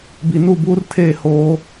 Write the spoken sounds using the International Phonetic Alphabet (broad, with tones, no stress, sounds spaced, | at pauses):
b i˨ n u˦˨ b uː˦ r tʰ eː˦˨ h oː˦